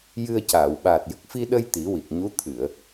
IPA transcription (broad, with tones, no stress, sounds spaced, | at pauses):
j ɨ˧ ə̯ c aː˨˩˨ w ɓ aː˨˩ t̚ j ə˨˩ k̚ f i˧ ɗ ə˧ j t̪ i˨˩˦ w i˨˩ k̚ ɲ u˧˥ t̪ʰ ɨ˨˩˨ ə̯